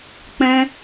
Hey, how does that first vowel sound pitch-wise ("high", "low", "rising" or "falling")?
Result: high